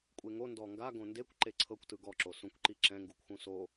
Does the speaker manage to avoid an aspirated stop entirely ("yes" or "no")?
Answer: no